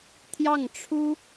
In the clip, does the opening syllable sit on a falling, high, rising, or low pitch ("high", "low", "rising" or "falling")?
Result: falling